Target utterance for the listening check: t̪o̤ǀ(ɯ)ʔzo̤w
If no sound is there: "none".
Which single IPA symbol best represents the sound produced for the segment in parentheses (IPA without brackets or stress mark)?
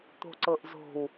ɤ